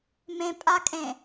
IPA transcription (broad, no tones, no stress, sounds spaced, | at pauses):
m ẽ pʼ a kʼ ẽ